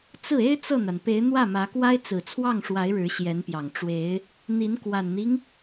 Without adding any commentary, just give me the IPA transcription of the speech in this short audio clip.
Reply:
t͡s ɹ̩˥˩ e˥ ɪ̯ t͡s ɤ˥˩ n̪ a˩ n p e˧˥ ɪ̯ n̪ w ä˥˩ m ä˧˥ k w a˥ ɪ̯ t͡s ɹ̩˨˩ t͡sʰ w ɑ˥˩ ŋ ʂ w a˧˥ ɪ̯ ɻ ɻ̩˧˥ ɕ j ɛ˧˥ n p j ɑ˨˩ ŋ ʈ͡ʂ w e˧˥ ɪ̯ | n̪ i˧˥ n k w a˨˩ n n̪ i˦ ŋ

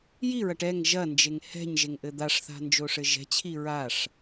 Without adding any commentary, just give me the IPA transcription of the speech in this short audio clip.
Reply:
j i ɹ ɐ ʈ ɛ ŋ ʒ ɐ n d͡ʒ e ŋ h ɛ̤ ɲ ʒ e ŋ ʔ ɘ d̪ a ʂ θ a̤ n d͡ʒ o ʂ ɘ ʒ ɛ̤ t͡ɕʰ i ɹ a ʂ

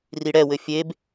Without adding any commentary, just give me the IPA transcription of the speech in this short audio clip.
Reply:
r i ɽ ɛ w ɘ fʲ e b

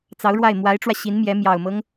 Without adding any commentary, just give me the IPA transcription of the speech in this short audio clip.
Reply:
t͡s ɑ˧˥ ʊ̯ ɻ w a˥˩ ɪ̯ m w a˧˥ ɪ̯ ʈ͡ʂ w ä˧ ɕ i˧˥ n m j ɛ˧˥ m j ɑ˨˩ ʊ̯ m ɤ˦ ŋ

